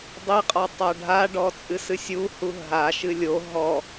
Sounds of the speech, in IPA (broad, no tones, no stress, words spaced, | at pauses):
dˤiqʼɔ tˤaɖʱaɖɔ t͡sʼɨsɨsʲuhu ɦaʃɨ lʲo ɦɔ